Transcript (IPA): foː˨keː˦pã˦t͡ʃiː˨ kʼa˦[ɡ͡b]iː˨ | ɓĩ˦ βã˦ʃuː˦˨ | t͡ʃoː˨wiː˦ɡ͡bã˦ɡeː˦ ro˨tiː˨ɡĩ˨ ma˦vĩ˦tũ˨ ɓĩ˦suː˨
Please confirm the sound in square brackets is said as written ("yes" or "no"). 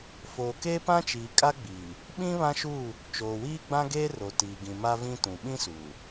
yes